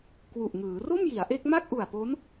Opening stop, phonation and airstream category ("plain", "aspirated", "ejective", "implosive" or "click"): plain